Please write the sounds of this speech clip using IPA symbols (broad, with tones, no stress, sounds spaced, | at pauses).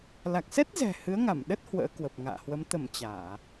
l a˨˩ k̚ s ɛ˦˥ t̚ z ɛ̤˨˩ h ɨ˨˦ ə̯ ŋ a˧˩ m ɗ ə˦˥ t̚ h w ə̰ː˧˥ k w ə˨˩ p̚ ŋ a̰ː˧˨ h w ə˨˦ m t̪ ə˧˩ m t͡ɕ aː˧˩˨